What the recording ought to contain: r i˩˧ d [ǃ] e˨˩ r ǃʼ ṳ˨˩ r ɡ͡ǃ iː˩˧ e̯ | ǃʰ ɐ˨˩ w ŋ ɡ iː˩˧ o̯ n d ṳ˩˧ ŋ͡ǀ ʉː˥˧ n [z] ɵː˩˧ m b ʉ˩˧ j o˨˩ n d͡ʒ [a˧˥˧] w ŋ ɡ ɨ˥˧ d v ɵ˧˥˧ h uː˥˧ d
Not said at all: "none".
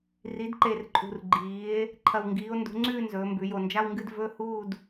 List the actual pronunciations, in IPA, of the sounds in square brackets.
ǃ, z, a˧˥˧

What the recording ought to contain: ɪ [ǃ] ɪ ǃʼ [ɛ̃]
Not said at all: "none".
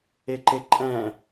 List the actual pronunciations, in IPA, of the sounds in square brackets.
ǃ, ɛ̃

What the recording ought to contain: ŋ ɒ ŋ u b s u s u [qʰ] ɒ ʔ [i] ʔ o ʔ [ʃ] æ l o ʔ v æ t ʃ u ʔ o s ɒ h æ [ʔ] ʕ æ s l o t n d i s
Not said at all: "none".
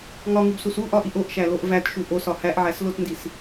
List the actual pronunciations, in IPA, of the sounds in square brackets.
ʔ, i, ʃ, ʔ

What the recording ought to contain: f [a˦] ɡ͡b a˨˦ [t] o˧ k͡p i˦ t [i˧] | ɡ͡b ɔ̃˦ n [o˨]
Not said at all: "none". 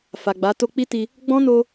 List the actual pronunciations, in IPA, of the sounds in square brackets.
a˨, t, i˧, o˧

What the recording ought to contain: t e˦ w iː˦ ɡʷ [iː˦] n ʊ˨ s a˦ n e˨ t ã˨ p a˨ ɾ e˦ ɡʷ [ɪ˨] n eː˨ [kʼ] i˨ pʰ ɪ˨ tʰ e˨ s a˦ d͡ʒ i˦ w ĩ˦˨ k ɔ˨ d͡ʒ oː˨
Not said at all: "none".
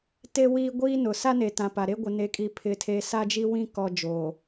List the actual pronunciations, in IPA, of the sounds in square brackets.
iː˦, ɪ˨, kʼ

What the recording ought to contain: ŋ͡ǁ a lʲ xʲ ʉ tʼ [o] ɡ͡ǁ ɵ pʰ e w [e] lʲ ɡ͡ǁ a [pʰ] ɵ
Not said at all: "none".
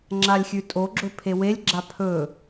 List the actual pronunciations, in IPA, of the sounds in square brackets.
o, e, pʰ

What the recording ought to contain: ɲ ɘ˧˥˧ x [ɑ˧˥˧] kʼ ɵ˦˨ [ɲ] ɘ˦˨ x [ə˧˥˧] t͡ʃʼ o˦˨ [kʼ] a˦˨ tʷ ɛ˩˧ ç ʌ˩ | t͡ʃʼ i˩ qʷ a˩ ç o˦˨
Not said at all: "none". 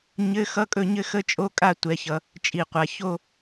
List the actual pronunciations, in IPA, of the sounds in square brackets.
ʌ˧˥˧, ɲ, ə˧˥˧, kʼ

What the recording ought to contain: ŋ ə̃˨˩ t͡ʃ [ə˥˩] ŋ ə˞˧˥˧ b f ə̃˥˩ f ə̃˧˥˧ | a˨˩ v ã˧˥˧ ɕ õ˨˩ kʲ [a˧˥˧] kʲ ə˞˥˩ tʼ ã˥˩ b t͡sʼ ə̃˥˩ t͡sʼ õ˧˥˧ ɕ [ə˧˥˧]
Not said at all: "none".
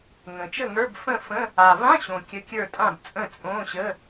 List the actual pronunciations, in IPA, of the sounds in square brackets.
ə˥˩, ə˧˥˧, ə˧˥˧

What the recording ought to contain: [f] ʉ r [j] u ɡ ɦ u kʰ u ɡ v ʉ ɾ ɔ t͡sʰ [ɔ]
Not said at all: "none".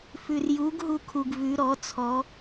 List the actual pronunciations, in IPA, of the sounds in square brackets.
f, j, ɔ

